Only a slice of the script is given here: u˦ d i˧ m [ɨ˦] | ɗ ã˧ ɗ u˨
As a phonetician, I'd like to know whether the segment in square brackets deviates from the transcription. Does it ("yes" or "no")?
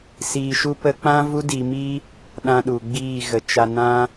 yes